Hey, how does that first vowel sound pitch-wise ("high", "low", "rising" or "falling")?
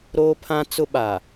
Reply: high